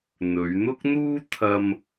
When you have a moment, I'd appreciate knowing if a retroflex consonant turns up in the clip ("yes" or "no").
no